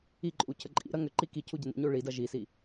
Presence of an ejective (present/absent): present